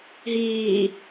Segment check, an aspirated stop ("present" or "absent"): absent